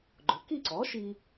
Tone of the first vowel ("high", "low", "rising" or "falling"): rising